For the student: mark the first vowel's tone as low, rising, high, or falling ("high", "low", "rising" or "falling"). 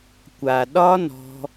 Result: low